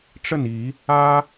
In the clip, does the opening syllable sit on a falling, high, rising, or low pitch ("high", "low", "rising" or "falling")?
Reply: falling